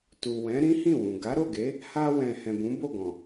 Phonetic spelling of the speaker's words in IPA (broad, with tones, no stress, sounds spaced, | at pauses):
t u˨ w ɛ̃˨˦ ɾ ĩ˦ h ĩ˦˨ w ũ˨ ɡ a˨˦ ɾ o˦˨ ɡ e˨˦ | h a˧ w ɛ̃˨ h ɛ̃˨ b ũ˨˦ b o˦˨ ɡ ɔ̃˨